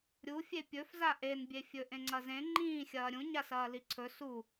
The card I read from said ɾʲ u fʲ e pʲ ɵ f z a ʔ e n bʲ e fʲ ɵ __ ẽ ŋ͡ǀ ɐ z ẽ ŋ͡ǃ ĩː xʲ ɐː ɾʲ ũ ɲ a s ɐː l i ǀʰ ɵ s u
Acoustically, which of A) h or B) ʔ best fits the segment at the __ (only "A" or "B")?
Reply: B